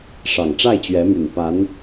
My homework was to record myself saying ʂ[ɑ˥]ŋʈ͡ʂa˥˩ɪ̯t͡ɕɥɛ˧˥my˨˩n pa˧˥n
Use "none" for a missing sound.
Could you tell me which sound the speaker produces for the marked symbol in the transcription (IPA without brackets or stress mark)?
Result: ɑ˨˩